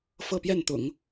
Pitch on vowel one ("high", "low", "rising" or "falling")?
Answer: falling